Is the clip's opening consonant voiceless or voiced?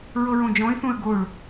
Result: voiced